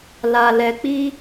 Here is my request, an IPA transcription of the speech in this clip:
l a˧ l ɛ˧ k͡p i˦

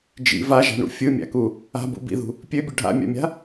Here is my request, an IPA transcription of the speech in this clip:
d͡ʒ ḭ v a ʒ a̤ ɳ ṵ fʲ ɯ mʲ a̰ k u | a̤ b ṵ b ḭ ð ṳ | pʲ ø bʲ ɵ ɖʱ a̰ mʲ a̰ mʲ a̤

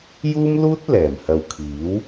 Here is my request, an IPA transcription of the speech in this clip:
j uː˥ m l uː˥ t̚ l ɛː˨˩ m h ɐ˨ w kʰ iː˨˥ w

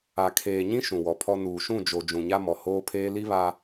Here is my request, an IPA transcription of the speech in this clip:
a˨ kʰ eː˨ ɲ ĩ˦ ʃ ũ˨ w ɔ˨ pʰ ɔ˦ n uː˨ ʃ ũ˦˨ d͡ʒ o˨ d͡ʒ ũ˨ ɲ a˦ m ɔ˨ h oː˦ pʰ eː˦ l i˦ β a˨

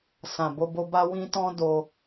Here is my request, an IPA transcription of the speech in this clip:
s ã˨ b o˧ b o˧ b a˧ w ĩ˧ t ɔ̃˦ d o˧

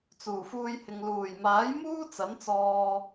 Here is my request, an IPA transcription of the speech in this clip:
t͡s uː˨˩ f uː˧ j h ɪ˨ ŋ l uː˨˩ j m aː˨˥ j m uː˥ t͡s ɐ˨˥ n t͡s ɔː˧

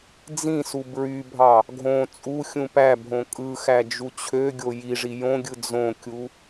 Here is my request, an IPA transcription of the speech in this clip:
d͡z ĩ s u b ɹ y bʱ ɑ | ɡʱ õ t͡sʼ u xʲ ũ p æ bʱ õ kʼ ɯ x æ d͡ʒ u t͡ɕʰ ø ɡʲ o j i ʐ i j õ ɡʲ ɯ d͡z õ kʲ u

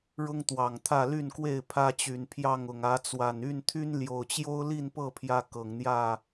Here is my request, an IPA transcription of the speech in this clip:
ɻ ʊ˦ ŋ t̪ w ɑ˨˩ ŋ t̪ʰ ä˥˨ l y˥˨ n k w e˥˨ ɪ̯ pʰ ä˦ t͡ɕ y˨˩ n pʰ j ɑ˥˨ ŋ ʊ˨˩ ŋ ä˨˦ t͡s w a˨˩ n y˥˨ n t̪ʰ y˦ n l j o˨˩ ʊ̯ t͡ɕ j o˦ ʊ̯ l i˥˨ n p ɤ˥˨ pʰ j ä˦ k ɤ˨˩ ŋ n̪ j ä˥˨

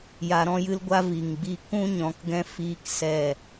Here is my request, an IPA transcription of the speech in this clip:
j a˧ ɾ ɔ̃˦ j ɨ˦ l ɡʷ a˦ v i˨ ŋ ɡ͡b i˧ k ũ˦ ɲ ɔ̃˨˦ k ɡ ɛ̃˦ f iː˦ k s ɛ˦˨

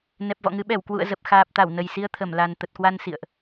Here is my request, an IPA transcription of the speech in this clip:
n ɛ˨˩ p̚ v ɔ̰˧˨ ŋ ɨ˨˦ ɓ ɛ˧˩ w k w ṵ˧˨ ə̯ z ə˨˩ p̚ x aː˨˩ p̚ t̪ a˧˩ w n ə˨˩ j s i˧ ə̯ t̪ʰ ə˧˩ m l a˨˩ n t̪ ə˨˩ t̚ k w a˧ n s ḭ˧˨ ə̯ ʔ

